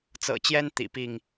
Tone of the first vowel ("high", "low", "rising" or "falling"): low